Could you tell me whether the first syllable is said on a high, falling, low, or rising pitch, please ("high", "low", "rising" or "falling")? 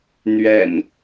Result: low